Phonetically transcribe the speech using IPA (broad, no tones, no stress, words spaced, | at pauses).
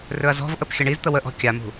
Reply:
rɵɐ̯zɔ̤vʔəp xʲəɳizt̪ə wəʔɔ̤ kʲamṳ